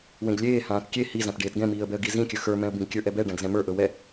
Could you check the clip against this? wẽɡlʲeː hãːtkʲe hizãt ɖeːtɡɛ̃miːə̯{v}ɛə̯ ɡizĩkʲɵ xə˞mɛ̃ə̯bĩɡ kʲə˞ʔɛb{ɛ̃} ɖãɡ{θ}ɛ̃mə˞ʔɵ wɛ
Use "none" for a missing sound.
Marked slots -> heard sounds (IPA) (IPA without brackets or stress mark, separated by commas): b, ɛ, z